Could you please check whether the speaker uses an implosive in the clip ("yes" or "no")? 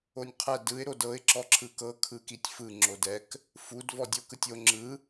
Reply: no